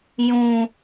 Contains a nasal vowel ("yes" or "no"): yes